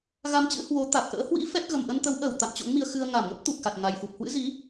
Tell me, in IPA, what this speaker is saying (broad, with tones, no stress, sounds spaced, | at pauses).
ɣ a˧ m t͡ɕ ɨ̰˧˥ h w o˨˦ t̪ a˨˩ k̚ ʔ ə̰ː˧˥ h w ḭ˧˥ f ɛ˦˥ t̚ ɣ ə˨˩ m ʔ ə˧ n t̪ ə˨˦ w ʔ əː˧˩ w t̪ a̰˧˨ m t͡ɕ o̰˧˥ ŋ m i˧ ə̯ x ɨ˧ ə̯ ŋ a˧˩ m ŋ ə˦˥ p̚ t̪ u˨˩ k̚ x a˨˩ t̚ ŋ a˨˩ j f u˨˩ p̚ h w ɨ̰˧˥ z i˨˦